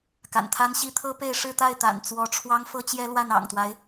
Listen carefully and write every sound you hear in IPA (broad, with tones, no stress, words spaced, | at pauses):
ka̰˨˩nt̪ʰa˥nɕi˥ t̪ʰɤ˥pe˥˧ɪ̯ ʂɻ̩˥˧t̪a˥˩ɪ̯t̪a̰˨˩n t͡swɔ˧˥ʈ͡ʂʰwɑ˥ŋ fɤ˥t͡ɕjɛ˥lwa˥˩n ɑ̰˨˩ŋt̪wa˦ɪ̯